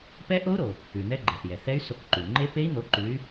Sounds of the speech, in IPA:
p ɛ˦˥ ʔ o˦˥ u̯ ɾ o˩ | ʉ˩ n̪ ɛ˦˥ ɡ͡ǃ ɛ˩ θ j ɛ˩ θ ɛ˦˥ y̯ s o˨˦ k ǃ ʉ˩ ŋ͡ǃ e˦˥ p e˦˥ i̯ n̪ o˨˦ ǃ ʉ˨˦ y̯

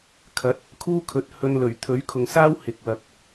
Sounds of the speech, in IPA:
kʰ ɐ˨˥ t̚ | kʰ uː˥ kʰ ɵ˨˥ t̚ h ɵ˧ n l ɵ˨˩ ɥ t̪ʰ ɵ˨˥ ɥ kʰ ʊ˨ ŋ s aː˥ w h ɪ˨ k̚ w ɐ˨˥ k̚

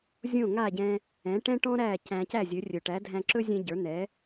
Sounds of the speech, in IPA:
zʲ õ˥˩ ŋ a˥˩ ɟ ɛ̃˧ | ɛ̃˩˥ ʈ ɛ̃˥ ʈ ɔ̃˥ ɾ æ˥˩ c æ̃˧ c æ˥˩ zʲ ɵ˩˥ rʲ ɵ˩ ʈ æ˩˥ dʱ æ̃˧ ǁ ɵ˥ zʲ ɛ̃˧ ɟ ə˞˩˥ n̪ ɛ˩˥

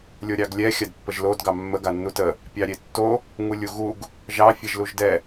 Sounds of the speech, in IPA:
lʲ o ɾʲ ɑ ɡ lʲ ɛ xʲ a d pː ə ʒ l o d ɡ ɑ mː ə ɡ a nː u t ə | pʲ ɑ ɾʲ e tː o | ŋ u lʲ u ɣ u ɡ | ʒ ɑ fʲ ɛ ʒ l u ʒ d ɛ

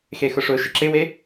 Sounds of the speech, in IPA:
x e x ʊ ʂ ʊ ʃ ɪ ǁ ɪ w e

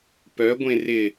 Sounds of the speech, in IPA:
p œ ɡʷ ẽ r ɪ

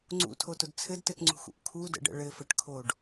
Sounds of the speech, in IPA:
ŋ͡ǀ ṵ tʰ o t ʊ d t͡sʰ ɘ d t ɘ t ŋ͡ǀ ṳ x ṵ ʔ kʰ u d ə̰ ɖ ə̰ ɭ ɘ f ə ʈ kʰ o ɖ

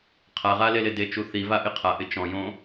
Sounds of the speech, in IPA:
qʰ a ʁ a l e l e d e t͡ʃ u θ i v a ʔ ɪ qʰ a ʔ ɪ t͡ʃ ɔ̃ j õ

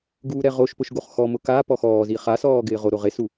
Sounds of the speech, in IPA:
ɡ uː ɾ ɛ ʁ o ʃ p ʊ ʃ ɡ o χ x ɔ m ʊ k a p ɔ x ɔː z i χ a s ɔː ɡ ɪː ʁ o ɾ o ʁ e s u

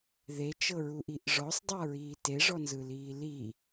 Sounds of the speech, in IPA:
ð e t͡ʃ ɤ ɹ u ʔ i ʔ ʐ ɔ sˤ dˤ a ɹ iː t e ʐ ɔ n z ɯ l iː l i

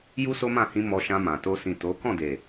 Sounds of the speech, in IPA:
j u˦ s o˦ m ã˦˨ h ĩ˧ m ɔ˧ ʃ ã˧ m ã˨ t o˧ s ĩ˨ t o˨˦ k ɔ̃˦˨ d e˨

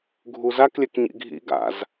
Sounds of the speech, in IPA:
ɡʱ u z a k lʲ ɛ k ɲ ḭ ɡʱ ḭ ɡ a̰ z

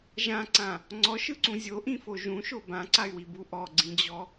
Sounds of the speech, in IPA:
ʒ ã ǀ ã | ŋ͡ǀ ɔ ʃ ɯ ǀ ũ zʲ o ʔ ĩ f o ʒ ũ ʃ o b ã ǀ a y̯ w i b u ʔ ɔ ɡ͡ǀ ĩ d͡ʑ ɔ

